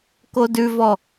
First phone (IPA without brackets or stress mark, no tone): k